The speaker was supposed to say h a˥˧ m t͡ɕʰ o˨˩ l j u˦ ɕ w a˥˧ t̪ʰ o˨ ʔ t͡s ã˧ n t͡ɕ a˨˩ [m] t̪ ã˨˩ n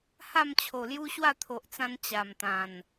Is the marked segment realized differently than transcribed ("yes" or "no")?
no